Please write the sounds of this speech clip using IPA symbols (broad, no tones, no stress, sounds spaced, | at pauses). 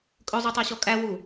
kʼ ɵ zˤ ʉ tˤ æ ɕ ɔ kʼ æ w u